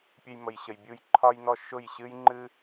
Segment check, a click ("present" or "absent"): present